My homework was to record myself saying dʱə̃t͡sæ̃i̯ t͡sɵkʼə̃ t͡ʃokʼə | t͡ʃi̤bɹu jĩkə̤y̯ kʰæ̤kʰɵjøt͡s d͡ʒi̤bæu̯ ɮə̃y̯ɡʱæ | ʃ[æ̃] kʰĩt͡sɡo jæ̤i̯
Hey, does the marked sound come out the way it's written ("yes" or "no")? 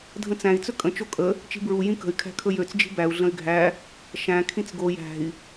yes